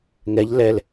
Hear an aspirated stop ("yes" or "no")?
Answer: no